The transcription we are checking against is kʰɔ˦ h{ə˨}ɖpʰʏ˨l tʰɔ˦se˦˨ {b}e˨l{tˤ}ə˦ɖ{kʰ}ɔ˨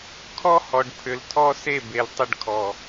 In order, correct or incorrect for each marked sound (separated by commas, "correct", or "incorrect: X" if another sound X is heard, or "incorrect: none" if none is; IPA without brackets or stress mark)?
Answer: incorrect: ɔ˨, correct, correct, correct